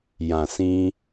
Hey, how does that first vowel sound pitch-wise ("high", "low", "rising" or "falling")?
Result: low